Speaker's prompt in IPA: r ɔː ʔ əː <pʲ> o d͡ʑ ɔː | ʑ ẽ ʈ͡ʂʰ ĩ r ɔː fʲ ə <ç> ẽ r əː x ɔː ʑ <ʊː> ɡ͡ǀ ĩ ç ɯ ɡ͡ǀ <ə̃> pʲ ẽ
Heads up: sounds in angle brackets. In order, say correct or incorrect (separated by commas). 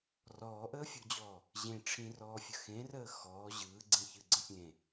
incorrect, incorrect, incorrect, correct